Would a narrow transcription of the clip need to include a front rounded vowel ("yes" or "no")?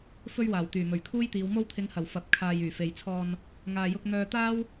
yes